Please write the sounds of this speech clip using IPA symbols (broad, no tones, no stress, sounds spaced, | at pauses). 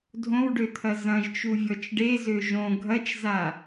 dʱ õ w ɖ ø t̪ʰ ɐ z ɐ̃ ʒ t͡ʃ u vʲ ɔ t͡ʃ ɖ e z ø ʒ õ ɡʱ ɐ t͡ʃ z a